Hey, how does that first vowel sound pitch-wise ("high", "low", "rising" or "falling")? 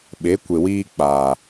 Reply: rising